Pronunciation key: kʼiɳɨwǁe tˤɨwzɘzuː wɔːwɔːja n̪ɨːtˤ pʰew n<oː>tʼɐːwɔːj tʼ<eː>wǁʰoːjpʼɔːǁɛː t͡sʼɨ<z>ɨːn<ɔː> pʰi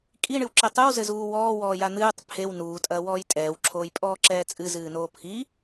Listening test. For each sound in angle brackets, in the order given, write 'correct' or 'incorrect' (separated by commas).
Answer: incorrect, incorrect, correct, incorrect